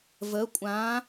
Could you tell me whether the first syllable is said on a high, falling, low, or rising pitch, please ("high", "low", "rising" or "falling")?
rising